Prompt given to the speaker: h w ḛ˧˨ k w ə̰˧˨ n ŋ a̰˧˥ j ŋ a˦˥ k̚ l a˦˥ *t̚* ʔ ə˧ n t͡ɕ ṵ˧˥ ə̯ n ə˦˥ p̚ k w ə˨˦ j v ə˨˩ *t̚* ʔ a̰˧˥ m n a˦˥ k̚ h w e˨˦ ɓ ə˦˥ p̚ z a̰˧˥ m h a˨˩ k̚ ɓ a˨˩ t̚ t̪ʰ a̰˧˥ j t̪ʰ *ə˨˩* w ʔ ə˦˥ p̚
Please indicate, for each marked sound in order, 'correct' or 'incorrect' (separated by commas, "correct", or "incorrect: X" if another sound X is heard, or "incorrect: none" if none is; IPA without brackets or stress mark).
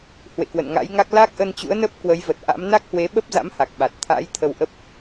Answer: incorrect: k̚, correct, incorrect: ə˧